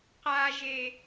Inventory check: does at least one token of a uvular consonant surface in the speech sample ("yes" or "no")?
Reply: yes